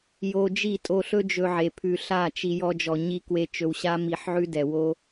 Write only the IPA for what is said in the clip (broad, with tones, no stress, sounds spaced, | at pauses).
j o˧ d͡ʒ i˦˨ tʼ o˧ ɬ ɵ˦ d͡ʒ ɵ˧ ʕ e˨ pʰ ʉ˧ ɬ a˦˨ t͡ʃ i˧ j ɔ˧ d͡ʒ ɔ˨ ɲ i˧ k w e˧ t͡ʃ ɵ˧ w ɕ a˦ m i˧ ħ ʕ ʉ˦ d ɛ˨ w o˦